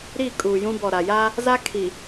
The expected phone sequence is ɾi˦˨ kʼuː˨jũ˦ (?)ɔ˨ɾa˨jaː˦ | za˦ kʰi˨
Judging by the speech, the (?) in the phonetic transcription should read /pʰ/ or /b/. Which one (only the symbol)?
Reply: b